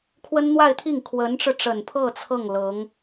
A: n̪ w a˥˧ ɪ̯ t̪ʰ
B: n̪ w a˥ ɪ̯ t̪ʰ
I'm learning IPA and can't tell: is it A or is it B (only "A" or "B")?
A